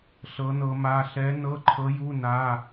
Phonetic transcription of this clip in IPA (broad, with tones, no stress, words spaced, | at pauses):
ɬɤ˧˥nɤ˧˥ma˧˥˧ ɬɛ˧˥nɤ˧˥˧ ǃʰɤ˧˥ju˧˥˧ na˧˥˧